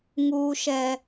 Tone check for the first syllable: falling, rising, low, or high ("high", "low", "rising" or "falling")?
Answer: high